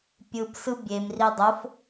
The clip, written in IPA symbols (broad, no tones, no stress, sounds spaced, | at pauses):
pʲ ɯ p s ɯ bʲ e m r i dˤ o f